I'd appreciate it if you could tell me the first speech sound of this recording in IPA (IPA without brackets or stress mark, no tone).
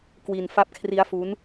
k